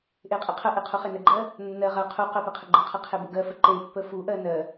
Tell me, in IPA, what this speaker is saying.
ʔ e qʼ e qʰ ə ʔ e qʰ u χ e n ə ɡ͡ǃ ɜ | nː ɜ ʁ ɜ qʰ u q ɜ p e qʰ ə ɡ͡ǃ ə qʰ ɜ qʰ e b ə ɡ ɜ f ə ǃ e pː ə f u ʔ ɜ n ɜ

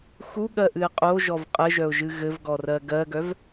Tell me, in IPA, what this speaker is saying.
x u ɠ ɜ ʔ ɨ ɪ̯ qʼ o ʒ ɔ v qʼ ɘ ʒ œ ʊ̯ ʒ ɨ ɣ ɘ v ɡ ɔ r ɜ ɡ ɜ ɡ œ v

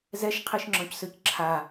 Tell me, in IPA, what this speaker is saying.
z ɛ ʃ qʰ i ʃ ŋ͡ǁ ɔ̃ c s ø c ǁʰ a

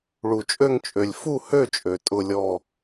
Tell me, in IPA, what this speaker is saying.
ɭ u˩ t͡ʃʼ ø˦˨ ŋ t͡ʃʼ ø˩ lʲ f u˦˨ h ø˦˨ t͡ʃʼ ø˩ tʼ ʊ˦˨ lʲ ɔ˦˨

